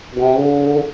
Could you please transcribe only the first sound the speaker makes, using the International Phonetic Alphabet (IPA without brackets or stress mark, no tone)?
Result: ɡ